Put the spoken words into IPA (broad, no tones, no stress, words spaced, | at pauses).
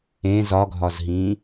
ẽ zɒɡʱɒzɦĩː